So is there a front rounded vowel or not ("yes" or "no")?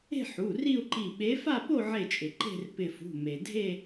no